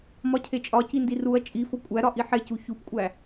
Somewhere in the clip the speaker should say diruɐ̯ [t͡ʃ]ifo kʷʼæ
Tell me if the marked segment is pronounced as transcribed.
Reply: no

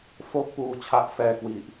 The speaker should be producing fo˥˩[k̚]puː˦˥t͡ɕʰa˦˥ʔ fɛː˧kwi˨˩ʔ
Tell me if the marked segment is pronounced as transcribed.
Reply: yes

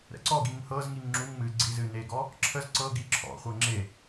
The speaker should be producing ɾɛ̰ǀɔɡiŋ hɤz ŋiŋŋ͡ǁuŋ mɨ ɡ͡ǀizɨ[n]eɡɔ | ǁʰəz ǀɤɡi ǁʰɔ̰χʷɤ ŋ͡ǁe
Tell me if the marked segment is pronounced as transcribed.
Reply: yes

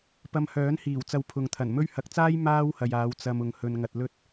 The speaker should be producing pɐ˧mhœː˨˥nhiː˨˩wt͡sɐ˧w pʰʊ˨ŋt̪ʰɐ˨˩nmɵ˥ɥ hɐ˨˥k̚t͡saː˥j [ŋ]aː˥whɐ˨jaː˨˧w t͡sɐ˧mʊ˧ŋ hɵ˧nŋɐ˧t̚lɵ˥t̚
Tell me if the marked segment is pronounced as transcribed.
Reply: no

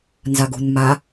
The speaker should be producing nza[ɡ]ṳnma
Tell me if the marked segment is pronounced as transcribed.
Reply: yes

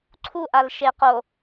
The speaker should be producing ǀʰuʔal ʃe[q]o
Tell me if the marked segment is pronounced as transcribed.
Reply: yes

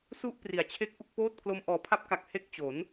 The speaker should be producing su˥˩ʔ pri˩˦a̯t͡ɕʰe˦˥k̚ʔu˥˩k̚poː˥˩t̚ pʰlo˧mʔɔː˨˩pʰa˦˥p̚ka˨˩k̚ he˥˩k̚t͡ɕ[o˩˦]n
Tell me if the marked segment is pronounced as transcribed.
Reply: yes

